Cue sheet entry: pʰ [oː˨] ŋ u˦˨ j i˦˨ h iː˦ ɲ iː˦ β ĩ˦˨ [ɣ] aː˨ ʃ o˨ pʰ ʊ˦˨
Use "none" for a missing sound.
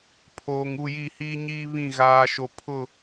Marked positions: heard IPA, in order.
oː˨, ɣ

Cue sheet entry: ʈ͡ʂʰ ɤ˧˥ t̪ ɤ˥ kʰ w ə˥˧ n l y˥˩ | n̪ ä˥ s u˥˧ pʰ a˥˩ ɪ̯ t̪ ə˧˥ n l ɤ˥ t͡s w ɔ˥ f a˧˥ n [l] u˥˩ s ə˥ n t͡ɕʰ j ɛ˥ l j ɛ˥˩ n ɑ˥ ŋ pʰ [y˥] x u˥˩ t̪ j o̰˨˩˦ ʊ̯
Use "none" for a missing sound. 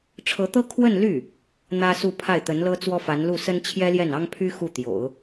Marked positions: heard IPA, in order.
l, y˥

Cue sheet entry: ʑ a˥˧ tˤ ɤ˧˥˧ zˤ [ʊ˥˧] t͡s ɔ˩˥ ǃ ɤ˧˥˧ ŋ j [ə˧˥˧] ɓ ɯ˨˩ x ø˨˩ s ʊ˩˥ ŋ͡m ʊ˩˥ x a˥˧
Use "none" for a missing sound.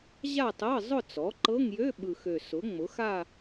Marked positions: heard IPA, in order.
ʊ˥˧, ø˧˥˧

